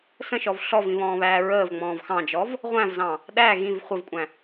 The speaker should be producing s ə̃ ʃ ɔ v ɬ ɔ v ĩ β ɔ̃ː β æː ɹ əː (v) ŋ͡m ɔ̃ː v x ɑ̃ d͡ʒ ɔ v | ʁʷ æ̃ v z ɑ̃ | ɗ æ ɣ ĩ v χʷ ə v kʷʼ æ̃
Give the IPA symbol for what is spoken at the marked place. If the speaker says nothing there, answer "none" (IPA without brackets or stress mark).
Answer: v